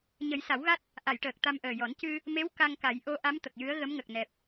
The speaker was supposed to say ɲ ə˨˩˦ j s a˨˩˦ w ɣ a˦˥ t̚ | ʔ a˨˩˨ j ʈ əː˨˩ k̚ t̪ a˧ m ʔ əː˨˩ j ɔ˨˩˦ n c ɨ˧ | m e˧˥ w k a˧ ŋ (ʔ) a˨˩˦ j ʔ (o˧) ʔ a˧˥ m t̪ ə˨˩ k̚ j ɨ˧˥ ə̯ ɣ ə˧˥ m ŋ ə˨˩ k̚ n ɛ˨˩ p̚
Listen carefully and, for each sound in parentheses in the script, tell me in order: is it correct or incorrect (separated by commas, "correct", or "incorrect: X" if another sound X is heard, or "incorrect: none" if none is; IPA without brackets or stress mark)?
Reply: incorrect: k, incorrect: o˧˥